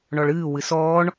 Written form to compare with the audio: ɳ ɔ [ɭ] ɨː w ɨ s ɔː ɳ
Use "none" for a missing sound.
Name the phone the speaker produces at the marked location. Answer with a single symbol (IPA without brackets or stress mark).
ɭ